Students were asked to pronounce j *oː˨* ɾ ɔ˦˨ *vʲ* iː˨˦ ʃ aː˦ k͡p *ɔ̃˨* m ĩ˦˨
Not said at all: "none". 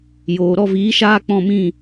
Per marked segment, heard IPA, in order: oː˨, v, ɔ̃˦˨

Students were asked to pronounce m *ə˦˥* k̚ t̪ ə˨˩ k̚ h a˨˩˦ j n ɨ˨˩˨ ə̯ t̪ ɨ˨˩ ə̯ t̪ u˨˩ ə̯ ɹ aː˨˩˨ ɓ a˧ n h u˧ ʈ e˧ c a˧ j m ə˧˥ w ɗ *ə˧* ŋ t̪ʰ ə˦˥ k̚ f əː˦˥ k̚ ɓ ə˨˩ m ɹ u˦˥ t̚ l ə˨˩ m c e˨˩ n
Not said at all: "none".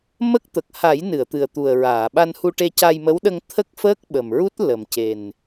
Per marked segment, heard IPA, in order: ə˦˥, ə˧

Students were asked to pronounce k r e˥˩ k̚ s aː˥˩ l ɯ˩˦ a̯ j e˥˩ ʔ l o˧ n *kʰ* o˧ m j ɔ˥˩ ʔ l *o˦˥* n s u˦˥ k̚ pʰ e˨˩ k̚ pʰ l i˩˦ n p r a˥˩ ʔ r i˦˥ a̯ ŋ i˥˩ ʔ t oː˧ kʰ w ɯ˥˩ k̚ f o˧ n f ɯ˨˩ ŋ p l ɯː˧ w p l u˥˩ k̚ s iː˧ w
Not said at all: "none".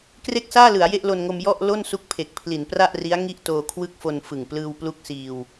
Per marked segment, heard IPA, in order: ŋ, o˥˩

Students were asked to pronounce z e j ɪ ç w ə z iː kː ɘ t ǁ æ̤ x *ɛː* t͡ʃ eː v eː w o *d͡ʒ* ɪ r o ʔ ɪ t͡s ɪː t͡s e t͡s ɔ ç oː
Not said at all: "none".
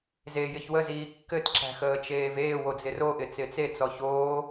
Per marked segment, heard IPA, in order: əː, d͡z

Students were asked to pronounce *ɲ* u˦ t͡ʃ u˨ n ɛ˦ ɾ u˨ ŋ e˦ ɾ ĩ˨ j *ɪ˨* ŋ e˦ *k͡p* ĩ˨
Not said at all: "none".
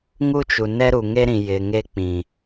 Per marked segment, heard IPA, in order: ŋ, ɪ˨, k͡p

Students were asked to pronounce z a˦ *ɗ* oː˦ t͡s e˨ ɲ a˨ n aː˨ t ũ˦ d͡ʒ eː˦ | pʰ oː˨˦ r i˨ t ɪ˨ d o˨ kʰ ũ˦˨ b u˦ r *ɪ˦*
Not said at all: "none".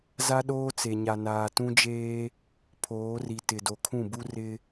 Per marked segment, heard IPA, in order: ɗ, ɪ˦

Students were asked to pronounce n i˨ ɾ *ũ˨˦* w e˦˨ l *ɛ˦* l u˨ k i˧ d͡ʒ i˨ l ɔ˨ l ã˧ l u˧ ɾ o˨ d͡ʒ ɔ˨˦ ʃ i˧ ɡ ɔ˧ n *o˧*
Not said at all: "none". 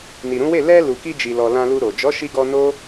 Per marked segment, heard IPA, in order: ũ˨˦, ɛ˧, o˦

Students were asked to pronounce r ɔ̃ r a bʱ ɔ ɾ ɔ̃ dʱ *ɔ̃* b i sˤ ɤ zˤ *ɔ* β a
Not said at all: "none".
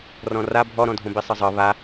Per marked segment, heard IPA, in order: õ, ɤ

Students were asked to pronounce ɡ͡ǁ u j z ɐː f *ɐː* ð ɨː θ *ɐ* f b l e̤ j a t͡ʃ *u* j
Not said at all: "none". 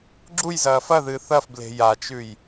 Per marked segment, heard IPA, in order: ɐ, ɐ, ʉ

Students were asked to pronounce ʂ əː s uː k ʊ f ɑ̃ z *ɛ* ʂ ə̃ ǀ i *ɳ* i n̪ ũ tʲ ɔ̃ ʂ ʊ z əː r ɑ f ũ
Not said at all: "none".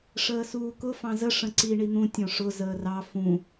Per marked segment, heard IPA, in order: ə, ɳ

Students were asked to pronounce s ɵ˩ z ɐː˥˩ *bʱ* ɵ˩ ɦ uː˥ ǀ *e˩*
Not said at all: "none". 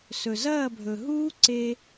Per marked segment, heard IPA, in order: bʱ, e˧

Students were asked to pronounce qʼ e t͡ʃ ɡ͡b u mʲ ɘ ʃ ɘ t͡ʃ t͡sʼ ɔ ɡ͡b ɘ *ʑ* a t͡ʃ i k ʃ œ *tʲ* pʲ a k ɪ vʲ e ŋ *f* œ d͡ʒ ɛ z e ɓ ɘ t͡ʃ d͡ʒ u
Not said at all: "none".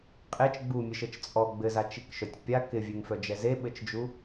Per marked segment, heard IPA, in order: z, tʲ, f

